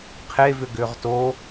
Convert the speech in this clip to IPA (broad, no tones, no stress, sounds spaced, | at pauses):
qʰ e v ʏ ɡ ʏː ʁ t o